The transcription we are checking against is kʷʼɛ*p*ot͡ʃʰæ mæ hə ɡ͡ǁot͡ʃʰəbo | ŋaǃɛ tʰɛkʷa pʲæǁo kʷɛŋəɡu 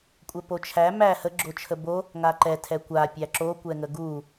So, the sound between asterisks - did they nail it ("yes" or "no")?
yes